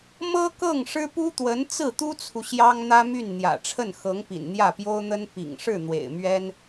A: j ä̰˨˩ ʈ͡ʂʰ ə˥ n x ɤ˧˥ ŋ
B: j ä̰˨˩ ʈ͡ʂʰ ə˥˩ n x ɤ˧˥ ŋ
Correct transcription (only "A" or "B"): B